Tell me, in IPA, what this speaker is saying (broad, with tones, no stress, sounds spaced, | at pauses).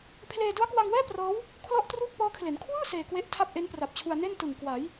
pʰ l eː˧ d ɯ˦˥ a̯ k w a˧ ŋ w ɛː˥˩ p r ɤː˦˥ w | kʰ l ɔ˥˩ ʔ t r uː˥˩ k̚ p ɤː˦˥ kʰ l e˩˦ n kʰ w ɯː˥˩ s eː˧ k w e˦˥ ʔ tʰ a˥˩ p̚ ʔ e˦˥ n p r a˨˩ p̚ t͡ɕʰ u˧ a̯ n e˥˩ n t ɯ˨˩ ŋ k w a˩˦ j